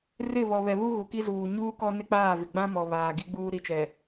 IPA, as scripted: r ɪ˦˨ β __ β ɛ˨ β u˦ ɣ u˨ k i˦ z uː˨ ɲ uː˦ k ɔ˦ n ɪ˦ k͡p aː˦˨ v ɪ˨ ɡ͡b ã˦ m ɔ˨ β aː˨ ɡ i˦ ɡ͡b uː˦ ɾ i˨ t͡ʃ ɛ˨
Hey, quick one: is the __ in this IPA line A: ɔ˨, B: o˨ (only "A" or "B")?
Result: A